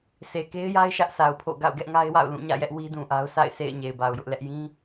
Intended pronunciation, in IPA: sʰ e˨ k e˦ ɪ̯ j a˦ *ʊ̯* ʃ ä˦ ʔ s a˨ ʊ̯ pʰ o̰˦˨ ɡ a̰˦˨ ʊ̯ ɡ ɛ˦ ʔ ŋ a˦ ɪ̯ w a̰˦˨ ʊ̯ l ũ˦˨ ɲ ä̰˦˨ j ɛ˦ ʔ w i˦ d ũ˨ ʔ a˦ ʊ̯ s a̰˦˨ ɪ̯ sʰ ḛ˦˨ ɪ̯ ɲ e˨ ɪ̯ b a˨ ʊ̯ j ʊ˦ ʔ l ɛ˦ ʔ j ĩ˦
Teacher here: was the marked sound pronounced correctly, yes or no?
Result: no